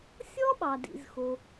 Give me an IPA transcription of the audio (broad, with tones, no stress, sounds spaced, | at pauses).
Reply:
sʲ ɔ˥ ɓ ɑ˩ d ḭ˩ z x o˩